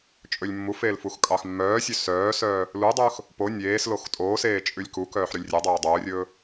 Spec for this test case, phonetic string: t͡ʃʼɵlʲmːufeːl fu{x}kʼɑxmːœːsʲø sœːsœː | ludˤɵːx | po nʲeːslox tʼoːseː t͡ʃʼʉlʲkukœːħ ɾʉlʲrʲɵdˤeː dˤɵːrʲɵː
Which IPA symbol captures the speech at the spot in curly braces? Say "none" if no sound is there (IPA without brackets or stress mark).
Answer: x